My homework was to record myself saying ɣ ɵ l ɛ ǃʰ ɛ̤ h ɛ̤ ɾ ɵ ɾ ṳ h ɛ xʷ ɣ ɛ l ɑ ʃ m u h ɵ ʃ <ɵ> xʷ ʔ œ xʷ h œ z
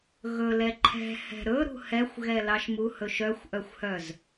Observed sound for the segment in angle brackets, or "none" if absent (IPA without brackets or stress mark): œ